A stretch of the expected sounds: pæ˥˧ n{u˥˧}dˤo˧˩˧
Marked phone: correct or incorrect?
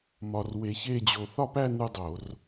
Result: correct